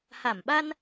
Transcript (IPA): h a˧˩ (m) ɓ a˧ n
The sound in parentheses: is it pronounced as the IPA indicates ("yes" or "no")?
yes